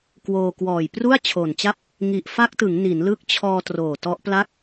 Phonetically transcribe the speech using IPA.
k w oː˧ k w ɔː˨˩ j p r u˥˩ a̯ t͡ɕʰ oː˨˩ n t͡ɕ a˥˩ p̚ | ŋ i˨˩ ʔ f a˦˥ k̚ t ɯ˩˦ ŋ n i˩˦ n l ɯ˦˥ k̚ t͡ɕʰ ɔː˧ t r oː˨˩ t ɔ˦˥ ʔ p l a˥˩ k̚

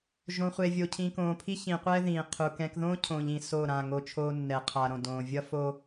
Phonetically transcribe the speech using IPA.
ʒ õ˨ χʷ e˨ vʲ o˨ cʰ ĩ˨ k õː˨ pʰ i˦ ç ĩ˨ qʷ ɛː˦ ð ĩː˨ qʰ u˨ k ɛ̃˨ k ð õː˦ cʰ õː˨ ʎ ĩ˨ s oː˦˨ ɾ ã˦˨ ŋ o˦ t͡ʃʰ oː˦ nː ɛ˨ qʰ a˨ ɾ õ˨ d õː˨ vʲ ʌ˦ f o˦

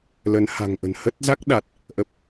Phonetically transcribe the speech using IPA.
l ə˨˦ n h a̤˨˩ ŋ ʔ ə̤˨˩ n h ə˦˥ t̚ z a˦˥ k̚ ɗ a˨˩ t̚ | ʔ ə˨˩ p̚

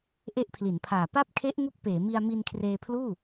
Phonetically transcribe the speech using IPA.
ʔ e˦˥ ʔ pʰ l i˩˦ n pʰ aː˨˩ p a˥˩ p̚ kʰ e˦˥ ʔ ŋ u˦˥ k̚ p eː˩˦ m i˧ a̯ m i˧ n kʰ r eː˧ pʰ l uː˥˩

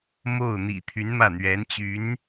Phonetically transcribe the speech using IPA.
m o˥˩ ʊ̯ n̪ ḭ˨˩ t̪ʰ y˧˥ n m ä˥˩ n̪ ɥ ɛ˧˥ n t͡ɕ y˧˥ n

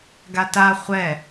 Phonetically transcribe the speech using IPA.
ɡ a t a χʷ ɛ

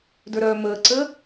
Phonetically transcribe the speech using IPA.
d ə˞ ɾ œː m əː ǀ əː

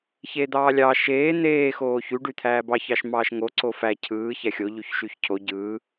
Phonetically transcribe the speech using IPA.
ç e d̪ ɑː lʲ ɑ ʃ eː n̪ eː x oː ç y ɖ y t̪ʰ æː b ɑ ç ɑ ʃ m ɑː ʃ ŋ o ǀ o f æ cʰ ɯː ç æ xʲ o ʎ y ç ʃ y ç cʰ o ɟ ɯː

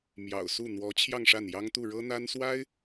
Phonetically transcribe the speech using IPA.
m j ɑ̰˨˩ ʊ̯ s u˥˩ n̪ w ɔ˧˥ t͡ɕʰ j ɑ˥˧ ŋ ʂ a˥˩ n j ɑ˥ ŋ t̪ u˥˩ ɻ ɤ˥ n̪ a˥ n s w a˥ ɪ̯

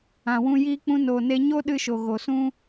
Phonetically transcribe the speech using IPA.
ã˨ w ũ˧ j iː˧ k͡p ũ˧ n oː˨ n e˧ ɲ o˦ ɗ ɨ˧ ʃ o˨ ɣ o˨ s ũ˦

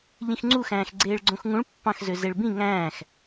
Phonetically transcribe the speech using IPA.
ʎ ĩ x ŋ͡ǀ u x æ̃ː x ɡ͡ǀ eː ɭ ɡ͡ǀ õ x ŋ ũ ɭ pː ɑ̃ x z ø z e ɭ b ĩ ŋ æ̃ː x

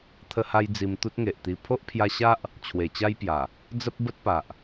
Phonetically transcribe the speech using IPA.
t̪ʰ ə˧ h a˧ j d͡z i˧ m t̪ u˦ t̚ ŋ e˨ ʔ t̪ i˧ pʰ o˦ ʔ pʰ j a˧ ɕ a˦ ʔ | t͡ɕʰ w e˨˩ t͡ɕ a˦ j p j a˨˩ | d͡z ə˦ p̚ b ə˦ t̚ p a˨ ʔ

